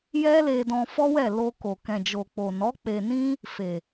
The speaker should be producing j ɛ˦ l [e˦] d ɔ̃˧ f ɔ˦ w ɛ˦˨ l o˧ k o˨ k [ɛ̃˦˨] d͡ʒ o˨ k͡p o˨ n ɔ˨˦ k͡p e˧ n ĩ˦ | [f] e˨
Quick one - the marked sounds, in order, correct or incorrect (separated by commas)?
incorrect, incorrect, correct